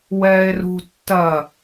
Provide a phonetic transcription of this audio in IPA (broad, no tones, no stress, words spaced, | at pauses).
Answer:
wɛːe̯rṳtːɐ